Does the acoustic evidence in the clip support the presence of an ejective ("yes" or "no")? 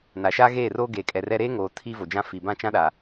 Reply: yes